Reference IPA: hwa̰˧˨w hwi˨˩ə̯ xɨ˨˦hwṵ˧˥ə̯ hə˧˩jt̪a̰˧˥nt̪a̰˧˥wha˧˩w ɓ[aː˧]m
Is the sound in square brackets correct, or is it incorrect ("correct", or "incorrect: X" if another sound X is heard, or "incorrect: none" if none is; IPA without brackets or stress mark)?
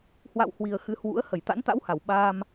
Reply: correct